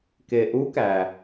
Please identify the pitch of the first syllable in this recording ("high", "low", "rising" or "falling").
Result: low